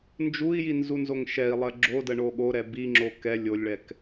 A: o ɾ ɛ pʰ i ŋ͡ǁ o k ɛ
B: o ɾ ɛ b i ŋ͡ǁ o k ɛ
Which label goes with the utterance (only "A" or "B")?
B